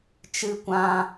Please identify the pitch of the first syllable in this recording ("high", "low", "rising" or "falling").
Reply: low